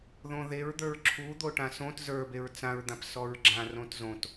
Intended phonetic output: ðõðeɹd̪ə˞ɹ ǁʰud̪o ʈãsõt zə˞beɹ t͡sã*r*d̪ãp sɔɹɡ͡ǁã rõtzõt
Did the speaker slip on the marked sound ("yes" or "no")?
yes